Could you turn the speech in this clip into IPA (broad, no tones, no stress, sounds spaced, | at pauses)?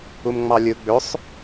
u m ŋ͡m ɑ lʲ ɯ ɡ͡b ø sˤ